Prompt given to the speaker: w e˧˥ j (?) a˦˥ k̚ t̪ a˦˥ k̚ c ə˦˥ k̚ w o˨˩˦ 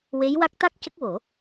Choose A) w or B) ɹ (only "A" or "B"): A